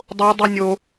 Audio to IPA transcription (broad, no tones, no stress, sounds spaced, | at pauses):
dˤ o dˤ ɯ nʲ o